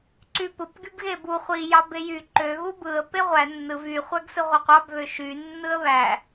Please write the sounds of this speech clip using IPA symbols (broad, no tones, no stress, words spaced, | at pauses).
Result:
ǀypɯp ɡybɣebu χʷi jɑbejyǃø ɣubɯə̯ peʁʷæ nːɯv y χʷæɡsɯʁʷɑqʷɑb βøʃy nːɯə̯βæ